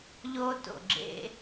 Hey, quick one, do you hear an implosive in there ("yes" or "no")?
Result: no